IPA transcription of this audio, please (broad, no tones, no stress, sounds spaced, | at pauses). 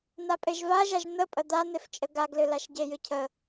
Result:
n̪ a pʼ e ʒ v a ʒ a ʒ n̪ ə pʼ ə d̪ a n̪ e f t͡ʃʼ ə ɡ a ɡ l ɨ l a ʃ ɟ e j ɨ cʰ ə